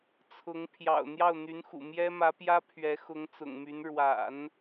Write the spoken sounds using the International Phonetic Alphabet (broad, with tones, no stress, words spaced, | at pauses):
t͡sʰʊ˧˥ŋ pʰjɑ̰˨˩ʊ̯ n̪jɑ˥˩ʊ̯ n̪y˧˥nxṵ˨˩ mjɛ˥mä˧˥pjä˥ pʰɥɛ˧˥xʊ˧˥ŋt͡sʊ̰˨˩ŋmy˧˥n ɻwa̰˨˩˦n